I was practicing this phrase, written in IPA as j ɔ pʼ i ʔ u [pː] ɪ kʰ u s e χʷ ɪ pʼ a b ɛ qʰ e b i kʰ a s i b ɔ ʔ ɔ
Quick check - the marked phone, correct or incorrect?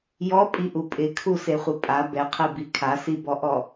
incorrect